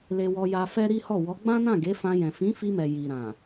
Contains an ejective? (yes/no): no